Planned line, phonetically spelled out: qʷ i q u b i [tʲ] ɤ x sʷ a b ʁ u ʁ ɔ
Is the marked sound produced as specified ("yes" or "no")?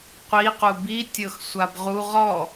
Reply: yes